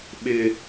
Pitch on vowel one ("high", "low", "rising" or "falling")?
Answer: low